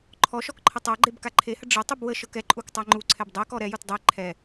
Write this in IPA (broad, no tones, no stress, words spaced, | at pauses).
ǃʰɔʃɔk ǃʰətˤaɡ͡ǃeb kaǃʰehə ɖ͡ʐə tˤubwəʃɤk ɛǃʼuk tˤaŋ͡ǃuǀʰɛb dˤɛkɔ ɾɛjut dˤɛ ǃʰɛ